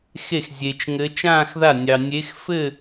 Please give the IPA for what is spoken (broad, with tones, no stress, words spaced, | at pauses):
xe˥˩xzʲe˧t͡ʃ ŋɘ˧˥ t͡ʃãː˥˧xða˥˩nʲɑ˧ nʲe˧˥xfɘ˥˧